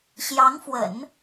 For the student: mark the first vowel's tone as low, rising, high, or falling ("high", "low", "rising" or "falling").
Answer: rising